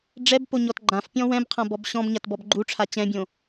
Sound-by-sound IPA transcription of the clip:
ɖ͡ʐ ɛ b p o ɲ ɔ t ɡ͡ǃ ã f pʲ ɔ̃ w ɛ̃ b qʰ ã b ɔ b ɕ ɔ̃ b ɲ a t b ɔ b ɡ͡ǃ u ʈ͡ʂʰ a t͡ɕ ɛ̃ bʲ õ

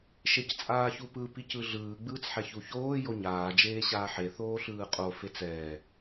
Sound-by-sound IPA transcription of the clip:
ʃ e c t͡sʼ aː ç u p ɯ p i c ɯ ɮ ɯː ɡ͡b ɯː t͡s ħ ɛ ç u ç oː j o ɲ aː d͡ʒ eː ɕ aː ħ e θ oː ɬ ɯː qʼ o f e t͡s ɛː

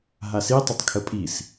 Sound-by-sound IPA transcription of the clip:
ɦ a s i tˤ œ tˤ kʰ ə pʼ i s

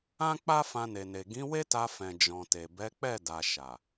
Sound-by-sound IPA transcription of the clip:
ã˦ k͡p a˦ f ã˧ n e˨ n e˨ ɡ ĩ˨˦ w e˦ t a˧ f ɛ̃˨ d͡ʒ ɔ̃˨ t e˨ b ɛ˨˦ k͡p ɛ˦˨ d a˨ ʃ a˨

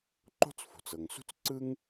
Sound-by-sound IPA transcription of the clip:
ǃ o̤˥ t͡s f o̤˩ t͡s ɤ˩ ŋ s ṳ˥ t͡s ǀ ɯ˥ ŋ

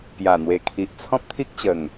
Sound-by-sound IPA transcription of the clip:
p j a˨˩ n̪ w e˨˩ kʰ i˨ ʔ t͡sʰ ɔ̃˦ p̚ t̪ʰ i˦ k̚ t͡ɕ ə˨˩ ŋ

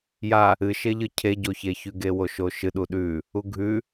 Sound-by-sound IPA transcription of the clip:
j a | ɨ ʃ e ʎ ɨ cʰ e ɟ o ç e ç ʉ ɡ e w o ʃ o ʃ ɨ ɗ u ɗ ʉ | u ɡʱ ʉ

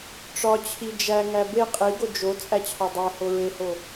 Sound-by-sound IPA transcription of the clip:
ʈ͡ʂ ɒ t͡ɕʰ i d͡ʒ æ ŋ æ b e qʼ i ɡ o d͡ʒ o t͡sʼ æ t͡ɕʰ ɒ dˤ æ h o ɹ e h o

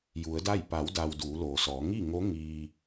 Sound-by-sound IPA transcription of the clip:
j u˩˧ ə̯ d a˥˨ j p a˩˧ w d a˩ w d uː˩˧ l oː˩ s ɔː˩˧ ŋ i˥˨ ŋ o˧˥ ŋ iː˧

